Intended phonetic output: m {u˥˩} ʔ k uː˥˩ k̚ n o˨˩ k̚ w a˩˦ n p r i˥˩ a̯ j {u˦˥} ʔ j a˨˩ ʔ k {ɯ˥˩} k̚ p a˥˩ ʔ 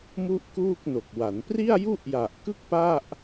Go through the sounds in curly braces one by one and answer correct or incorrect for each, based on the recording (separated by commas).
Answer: correct, incorrect, correct